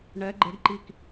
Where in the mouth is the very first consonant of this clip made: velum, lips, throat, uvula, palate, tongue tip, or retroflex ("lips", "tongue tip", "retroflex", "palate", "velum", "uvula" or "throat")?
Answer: retroflex